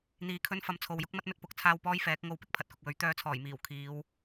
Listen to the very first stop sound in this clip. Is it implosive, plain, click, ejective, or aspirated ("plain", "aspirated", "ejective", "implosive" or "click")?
aspirated